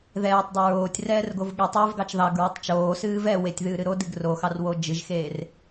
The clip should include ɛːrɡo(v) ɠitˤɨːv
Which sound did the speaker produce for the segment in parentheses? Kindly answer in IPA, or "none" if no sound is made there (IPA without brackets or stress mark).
v